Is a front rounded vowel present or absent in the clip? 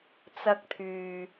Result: present